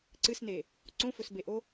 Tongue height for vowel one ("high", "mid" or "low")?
high